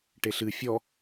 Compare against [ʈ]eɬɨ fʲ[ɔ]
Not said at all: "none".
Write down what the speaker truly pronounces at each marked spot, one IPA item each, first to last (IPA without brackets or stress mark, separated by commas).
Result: ʈ, ɔ